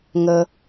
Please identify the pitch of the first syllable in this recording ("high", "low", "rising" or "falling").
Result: low